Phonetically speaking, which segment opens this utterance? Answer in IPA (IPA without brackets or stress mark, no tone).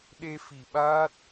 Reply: ɗ